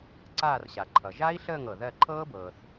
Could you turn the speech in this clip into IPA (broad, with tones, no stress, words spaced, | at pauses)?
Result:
ǀaː˦˨rɕa˩ǃʰʌ˩ ʒa˦˥i̯ɬəː˦˨ŋ ɤ˩ðɜ˦˨ ǃʰɤː˦˥bɤː˩θ